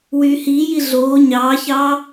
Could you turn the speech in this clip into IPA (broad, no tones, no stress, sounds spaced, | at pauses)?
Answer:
w yː h iː j i ɮ oː ɲ ɑː ç ɑː